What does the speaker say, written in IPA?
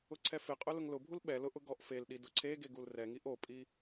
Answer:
ʊǀʰɛfɪqʼʊ lʊŋlʊbʱul ɓɛ lʊʔʊ ɡɔʔfelɗi dʊǀʰeɡe ɡulrɛŋiʔ opʼi

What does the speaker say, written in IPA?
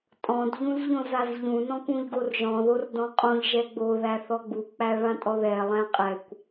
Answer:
tʼɔ̃d ʎũzʎõzazʎũ nɔ̃kũʎɡorʒɔ̃ ðordɔ̃qʼõʎ ʒɛɡ͡bo ðæθɔɡ͡bu k͡pæɭãtʼɔðɛ lˠæ̃qʼɛkʷ

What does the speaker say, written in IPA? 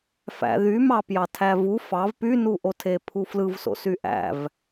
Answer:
fæ̰ðymɑ pjɑtʰævu fɑv pynuʔotʰe pʰuflɯvso̰ syʔæ̰v

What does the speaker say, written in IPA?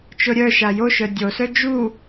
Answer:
t͡ʃoɾʲœʃa joʃœ dʲosœ d͡ʒu

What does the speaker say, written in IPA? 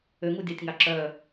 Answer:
øŋudʲɑtʲŋɑ ǁœ

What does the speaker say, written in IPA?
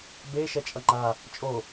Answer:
be ʃɛt͡ʃʼʌŋ͡ǃa | t͡ʃʼo

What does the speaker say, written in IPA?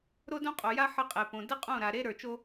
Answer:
ɾo˦dõ˦qʼo˨ja˦ ħə˦qʼe˨põ˨ də˦qʼõ˦˨ɾa˨ ɾe˦ ɾə˞˨t͡ʃo˦

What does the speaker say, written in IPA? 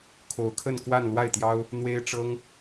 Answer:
kʰo˧˥ʊ̯kʰə˥˧nkwa˥˧n lwa˥˩ɪ̯t̪jɑ˥ʊ̯ | n̪we˥ɪ̯ʈ͡ʂɤ˥ŋ

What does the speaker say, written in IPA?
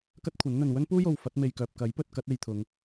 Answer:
kɐ˥t̚kʷʰɐ˨˥nn̪ɵ˨n wɵ˥npuː˥jo˨w fɐ˨˥t̚me˨jkœː˨p̚ kɐ˨˥jpɵ˨t̚ kɐ˥t̚e˧jt̪ʰʊ˨˧ŋ

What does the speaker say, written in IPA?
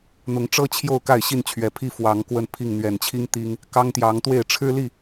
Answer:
n̪ʊ˨˦ŋʈ͡ʂɤ˦ t͡ɕʰjo˥˨ʊ̯ka˥˨ɪ̯ ɕi˥˨nt͡ɕʰɥɛ˨˩pʰi˥˨ fwɑ˨˦ŋkwə˥˨npʰi˥˨ŋ n̪ɥɛ˨˩nt͡ɕʰi˦ŋ t̪i˦ŋ | kɑ˦ŋt̪jɑ˨˦ŋt̪we˥˨ɪ̯ ʈ͡ʂʰɻ̩˦li˥˨

